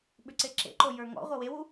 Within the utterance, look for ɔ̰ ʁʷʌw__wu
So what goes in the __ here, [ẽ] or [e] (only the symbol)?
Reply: e